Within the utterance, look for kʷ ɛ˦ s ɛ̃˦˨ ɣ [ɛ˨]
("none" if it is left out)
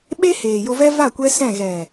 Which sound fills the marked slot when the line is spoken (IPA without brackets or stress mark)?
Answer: ɛ˨